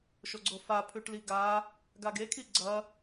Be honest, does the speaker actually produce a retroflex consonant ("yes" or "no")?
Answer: yes